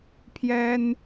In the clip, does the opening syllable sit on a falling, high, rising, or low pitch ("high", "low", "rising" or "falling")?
high